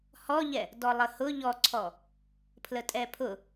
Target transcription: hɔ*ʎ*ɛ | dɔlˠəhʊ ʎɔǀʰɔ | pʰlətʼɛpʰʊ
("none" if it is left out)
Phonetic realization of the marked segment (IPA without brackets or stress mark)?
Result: ʎ